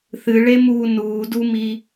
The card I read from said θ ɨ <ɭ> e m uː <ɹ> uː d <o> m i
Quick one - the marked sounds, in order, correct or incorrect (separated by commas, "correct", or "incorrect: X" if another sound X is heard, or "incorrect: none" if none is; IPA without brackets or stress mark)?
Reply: correct, incorrect: n, incorrect: u